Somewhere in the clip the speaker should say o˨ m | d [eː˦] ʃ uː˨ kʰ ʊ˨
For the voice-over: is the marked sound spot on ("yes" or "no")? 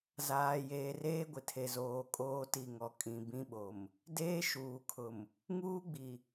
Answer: yes